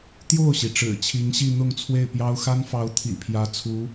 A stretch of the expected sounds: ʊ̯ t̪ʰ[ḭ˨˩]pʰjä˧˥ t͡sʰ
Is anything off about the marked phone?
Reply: no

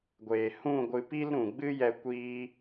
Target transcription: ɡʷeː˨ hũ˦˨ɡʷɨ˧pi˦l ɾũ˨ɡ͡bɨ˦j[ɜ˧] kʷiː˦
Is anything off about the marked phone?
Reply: yes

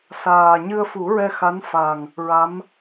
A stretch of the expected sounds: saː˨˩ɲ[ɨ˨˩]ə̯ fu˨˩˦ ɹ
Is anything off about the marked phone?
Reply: yes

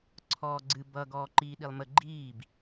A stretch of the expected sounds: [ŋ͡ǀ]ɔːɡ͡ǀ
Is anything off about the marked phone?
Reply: yes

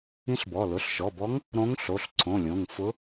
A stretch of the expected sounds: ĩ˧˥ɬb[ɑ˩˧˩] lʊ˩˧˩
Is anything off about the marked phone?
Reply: yes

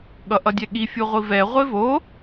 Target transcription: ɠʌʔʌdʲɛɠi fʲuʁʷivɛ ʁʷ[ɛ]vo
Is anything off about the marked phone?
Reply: yes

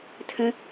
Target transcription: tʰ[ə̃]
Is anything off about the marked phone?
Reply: no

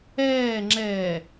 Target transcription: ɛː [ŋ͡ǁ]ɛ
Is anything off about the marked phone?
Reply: no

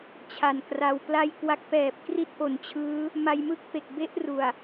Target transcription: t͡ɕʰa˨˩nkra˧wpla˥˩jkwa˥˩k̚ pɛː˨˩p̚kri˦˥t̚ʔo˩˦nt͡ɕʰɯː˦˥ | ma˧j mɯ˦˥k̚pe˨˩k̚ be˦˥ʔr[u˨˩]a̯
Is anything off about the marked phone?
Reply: no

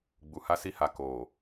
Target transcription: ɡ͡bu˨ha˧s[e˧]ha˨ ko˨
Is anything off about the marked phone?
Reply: yes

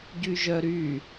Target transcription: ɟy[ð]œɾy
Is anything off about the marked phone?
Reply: yes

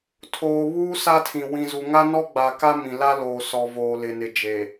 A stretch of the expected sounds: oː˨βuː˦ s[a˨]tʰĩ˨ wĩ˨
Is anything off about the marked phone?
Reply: yes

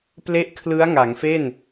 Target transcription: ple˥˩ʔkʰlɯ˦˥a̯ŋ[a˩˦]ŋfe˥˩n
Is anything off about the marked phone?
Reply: no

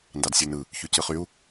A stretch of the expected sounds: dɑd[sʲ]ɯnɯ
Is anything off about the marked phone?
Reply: no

